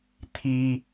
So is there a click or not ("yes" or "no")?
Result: no